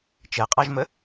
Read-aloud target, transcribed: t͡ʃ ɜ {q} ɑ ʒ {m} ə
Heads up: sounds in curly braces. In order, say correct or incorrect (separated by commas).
incorrect, correct